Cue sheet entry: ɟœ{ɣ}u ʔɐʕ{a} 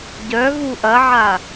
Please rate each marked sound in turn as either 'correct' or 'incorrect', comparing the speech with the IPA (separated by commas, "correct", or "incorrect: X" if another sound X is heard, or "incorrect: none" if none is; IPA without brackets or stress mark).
correct, correct